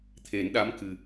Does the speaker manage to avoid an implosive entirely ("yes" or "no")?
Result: no